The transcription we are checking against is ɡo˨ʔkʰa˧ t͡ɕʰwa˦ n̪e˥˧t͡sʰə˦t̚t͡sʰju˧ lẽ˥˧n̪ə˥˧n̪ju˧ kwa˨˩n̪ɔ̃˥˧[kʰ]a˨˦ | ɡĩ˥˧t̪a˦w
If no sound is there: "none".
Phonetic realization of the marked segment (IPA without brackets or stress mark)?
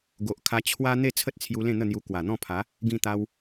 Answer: pʰ